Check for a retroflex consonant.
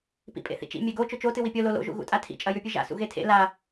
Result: absent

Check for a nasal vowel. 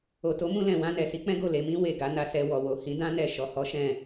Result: present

